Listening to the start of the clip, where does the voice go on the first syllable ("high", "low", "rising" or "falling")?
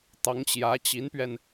rising